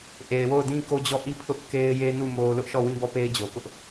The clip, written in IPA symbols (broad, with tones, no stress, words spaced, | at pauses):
ʔe˨ɪ̯wo˦˨ʊ̯ dĩ˦ko˦d͡ʑɔ˦˨ ʔi˦ pʰʊ˦ʔ ke˦ɪ̯ je˦nu˦˨ mo˦ lʊ˦ʔʃɔ˦˨wĩ˦bɔ˦˨ pe˦ɪ̯d͡ʑo˨kʊ˦ʔ